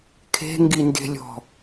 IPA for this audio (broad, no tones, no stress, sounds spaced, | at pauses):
kʰ e̤ ŋ ɡ i n d e̤ lʲ ɔ̤